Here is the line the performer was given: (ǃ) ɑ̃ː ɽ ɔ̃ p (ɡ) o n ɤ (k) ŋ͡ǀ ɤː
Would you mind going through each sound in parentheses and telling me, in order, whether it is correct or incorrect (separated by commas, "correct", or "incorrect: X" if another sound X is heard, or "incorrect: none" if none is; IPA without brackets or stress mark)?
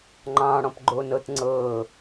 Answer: incorrect: ŋ͡ǃ, incorrect: ɡ͡ǃ, incorrect: t